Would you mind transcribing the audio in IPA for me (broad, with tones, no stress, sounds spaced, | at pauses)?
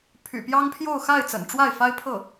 pʰ y̰˨˩ p j ɑ˥ ŋ pʰ j o˥˧ ʊ̯ x a˥˩ ɪ̯ t͡s ə̰˨˩ n ʈ͡ʂ w a˥˩ ɪ̯ f a˥ ɪ̯ pʰ ɤ˥˩